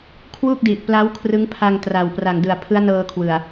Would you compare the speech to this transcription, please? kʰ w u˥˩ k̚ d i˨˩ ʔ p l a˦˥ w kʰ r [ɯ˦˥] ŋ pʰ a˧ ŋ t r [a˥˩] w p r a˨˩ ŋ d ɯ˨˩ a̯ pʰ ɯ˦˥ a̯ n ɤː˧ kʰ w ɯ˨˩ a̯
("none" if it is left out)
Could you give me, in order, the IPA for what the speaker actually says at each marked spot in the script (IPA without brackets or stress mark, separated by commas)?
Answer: ɯ˦˥, a˨˩